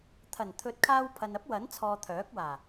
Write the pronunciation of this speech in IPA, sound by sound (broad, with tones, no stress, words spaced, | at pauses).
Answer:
t̪ʰɐ˨˩nt̪ʰɵ˨˥t̚kʰaː˧w pʰɐ˨nɐ˥p̚wɐ˨˥nt͡sʰɔː˨ t̪ʰœː˨˥k̚waː˨˩